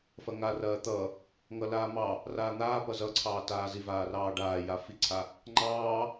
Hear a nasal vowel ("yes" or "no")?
no